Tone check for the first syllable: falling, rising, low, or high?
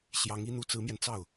rising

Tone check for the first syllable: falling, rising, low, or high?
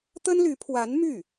high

